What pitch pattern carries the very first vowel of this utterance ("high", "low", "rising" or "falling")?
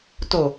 low